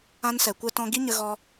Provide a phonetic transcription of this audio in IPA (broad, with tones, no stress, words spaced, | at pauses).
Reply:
ã˧nsɛ˨kʷɛ˧tɔ̃˧ ɡi˦ɲə˧ ɣɔ˧